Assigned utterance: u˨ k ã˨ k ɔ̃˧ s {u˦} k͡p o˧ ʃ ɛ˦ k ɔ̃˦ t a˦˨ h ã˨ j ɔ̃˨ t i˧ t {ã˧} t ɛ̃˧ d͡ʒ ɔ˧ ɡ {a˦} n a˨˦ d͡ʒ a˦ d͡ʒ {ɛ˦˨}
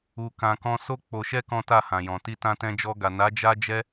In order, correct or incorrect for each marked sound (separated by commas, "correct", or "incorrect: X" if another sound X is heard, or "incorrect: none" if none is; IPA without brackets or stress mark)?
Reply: incorrect: o˦, correct, incorrect: a˨, incorrect: ɛ˦